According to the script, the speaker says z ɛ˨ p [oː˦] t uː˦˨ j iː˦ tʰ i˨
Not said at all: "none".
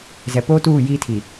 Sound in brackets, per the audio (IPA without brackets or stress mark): oː˦